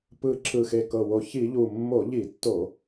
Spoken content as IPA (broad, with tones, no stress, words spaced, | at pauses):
pɯ˨˩ ǁʰɯ˨˩xe˨˩kɤ˨˩wo˨˩ çi˧˩˧ʎu˨˩mːo˧˩˧ ʎi˧˩˧tːo˧˩˧